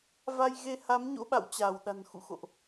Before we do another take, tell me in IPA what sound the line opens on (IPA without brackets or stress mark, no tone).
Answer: v